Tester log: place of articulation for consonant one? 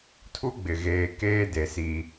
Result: alveolar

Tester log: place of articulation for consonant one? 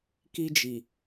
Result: velar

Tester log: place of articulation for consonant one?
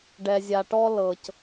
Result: retroflex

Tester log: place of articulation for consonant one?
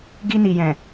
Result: velar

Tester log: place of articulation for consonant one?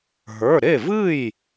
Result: glottal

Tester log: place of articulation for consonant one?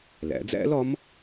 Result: alveolar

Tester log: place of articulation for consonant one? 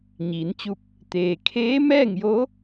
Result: palatal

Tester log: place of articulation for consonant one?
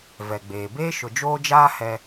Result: labial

